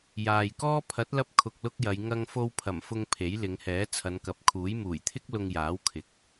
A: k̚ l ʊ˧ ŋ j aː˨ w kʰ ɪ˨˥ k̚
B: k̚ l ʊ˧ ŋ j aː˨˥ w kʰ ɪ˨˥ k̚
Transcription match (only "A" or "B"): B